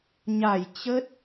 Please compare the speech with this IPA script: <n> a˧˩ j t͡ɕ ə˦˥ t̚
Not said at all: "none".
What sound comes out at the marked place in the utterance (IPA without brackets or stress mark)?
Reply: ɲ